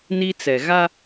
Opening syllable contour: high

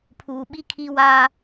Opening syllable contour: low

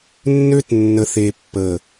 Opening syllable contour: high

